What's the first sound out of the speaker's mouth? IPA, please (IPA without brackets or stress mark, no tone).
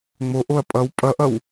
ŋ͡m